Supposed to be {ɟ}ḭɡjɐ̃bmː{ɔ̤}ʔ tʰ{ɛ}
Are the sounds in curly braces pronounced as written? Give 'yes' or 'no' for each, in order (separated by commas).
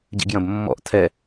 yes, no, yes